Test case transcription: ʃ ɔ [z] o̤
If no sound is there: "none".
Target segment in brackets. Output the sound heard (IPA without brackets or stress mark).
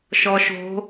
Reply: ʃ